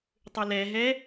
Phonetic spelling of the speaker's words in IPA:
tˤ ʏ l ɛ ɦ ɛ

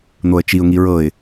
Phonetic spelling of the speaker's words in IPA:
n̪ o ə̯ t͡ʃ i ʊ̯ ŋ i ɹ ɤ ɪ̯

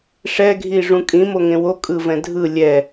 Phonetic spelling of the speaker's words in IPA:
ʂ ɛ ɡʱ i ʐ ũ kʼ ĩ m o ŋ ẽ w o kʼ ɯ v ɛ̃ dʱ ɯ lʲ ɛ

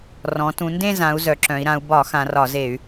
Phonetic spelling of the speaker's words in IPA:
r ɔ̃˩˧ t ũ˩˧ n d ẽ˥˧ z ã˩˧ u̯ z œ˩˧ ǁ œ̃˩˧ i̯ ɾ ã˩˧ u̯ b ɒ˧˩˧ x ã˩˧ r ɒ˧˩˧ z e˧˩˧ y̯

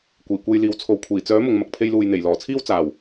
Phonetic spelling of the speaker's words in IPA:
kʷ iː˨˩ kʷ e˧ j l iː˨ w t͡sʰ o˨ w kʷʰ iː˨˩ t͡s œː˨˥ m ʊ˨ ŋ m ɐ˨ k̚ pʰ e˧ j l uː˨ j n̪ e˨˩ j l ɔː˨˩ t͡sʰ iː˥ w t͡s aː˨˩ w

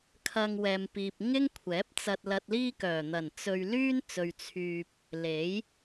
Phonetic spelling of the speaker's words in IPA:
kʰ ɐ˧ ŋ w ɛː˨ m p iː˨ p̚ ŋ ɪ˥ ŋ kʷʰ ɛː˨˥ p̚ t͡s ɐ˨ t̚ l ɐ˨ t̚ l iː˧ k œː˨˩ n̪ ɐ˨˩ n t͡s ɵ˨ ɥ l yː˥ n t͡s ɵ˨ ɥ t͡sʰ yː˨ p̚ | l e˨˥ j

